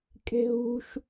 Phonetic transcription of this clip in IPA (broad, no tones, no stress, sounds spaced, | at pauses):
kʼ e̤ ɦ ṳ ʃ